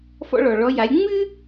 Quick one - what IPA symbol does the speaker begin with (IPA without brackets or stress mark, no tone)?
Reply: f